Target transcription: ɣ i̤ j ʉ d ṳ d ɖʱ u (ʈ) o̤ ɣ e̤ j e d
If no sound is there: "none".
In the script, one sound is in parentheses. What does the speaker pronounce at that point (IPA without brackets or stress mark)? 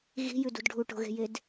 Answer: ʈ